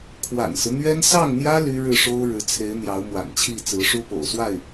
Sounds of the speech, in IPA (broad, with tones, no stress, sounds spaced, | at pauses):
kʰ w a̰˨˩ n s ɹ̩˦ n̪ ɥ ɛ˥ n s ɑ˥˩ ŋ n̪ j ä˥ l y˥ ɻ ɻ̩˥˩ ʂ o˥ ʊ̯ ɻ ɻ̩˧˥ t͡sʰ e˧˥ ɪ̯ n̪ j ɑ˧˥ ʊ̯ m w a̰˨˩ n t͡ɕʰ i˥˩ t͡s ɹ̩˧˥ ʂ u˥ p o̰˨˩ ʊ̯ s w a˥˩ ɪ̯